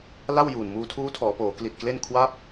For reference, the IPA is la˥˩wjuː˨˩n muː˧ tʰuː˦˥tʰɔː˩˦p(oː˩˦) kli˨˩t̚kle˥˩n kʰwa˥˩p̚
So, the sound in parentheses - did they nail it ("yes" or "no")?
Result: yes